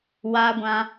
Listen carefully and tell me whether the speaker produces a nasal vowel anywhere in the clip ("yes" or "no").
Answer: yes